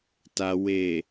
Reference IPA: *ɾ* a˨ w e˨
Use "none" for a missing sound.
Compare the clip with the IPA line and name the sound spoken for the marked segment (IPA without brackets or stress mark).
t